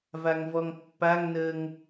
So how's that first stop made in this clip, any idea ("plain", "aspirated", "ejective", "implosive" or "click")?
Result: plain